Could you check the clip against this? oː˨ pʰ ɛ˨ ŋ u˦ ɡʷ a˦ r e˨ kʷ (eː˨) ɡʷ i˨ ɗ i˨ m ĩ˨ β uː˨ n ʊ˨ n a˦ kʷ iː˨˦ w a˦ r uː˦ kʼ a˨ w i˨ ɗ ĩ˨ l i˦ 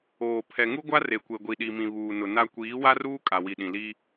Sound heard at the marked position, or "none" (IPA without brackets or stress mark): e˨